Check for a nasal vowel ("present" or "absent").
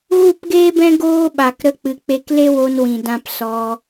present